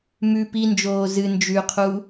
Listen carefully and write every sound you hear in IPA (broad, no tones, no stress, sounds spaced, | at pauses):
m ʉ p i n d͡ʒ oː z ɨ n d͡ʒ ʉ qʰ u